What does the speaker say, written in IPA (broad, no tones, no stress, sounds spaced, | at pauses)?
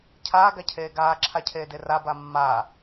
cʰ aː ɡ a cʰ eː ɡ aː ǁʰ a cʰ eː d e r a b a mː aː